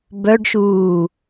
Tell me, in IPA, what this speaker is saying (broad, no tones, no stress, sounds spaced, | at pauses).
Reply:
b œ ɖ ʃ uː